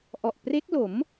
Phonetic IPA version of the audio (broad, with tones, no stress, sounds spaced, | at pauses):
ʔ ɔ˨˩ ʔ p r e˦˥ k̚ l o˩˦ m